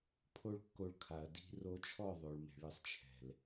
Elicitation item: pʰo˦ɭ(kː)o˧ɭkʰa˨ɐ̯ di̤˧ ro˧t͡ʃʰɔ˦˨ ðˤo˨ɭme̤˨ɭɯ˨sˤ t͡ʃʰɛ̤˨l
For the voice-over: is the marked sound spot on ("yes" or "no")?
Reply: yes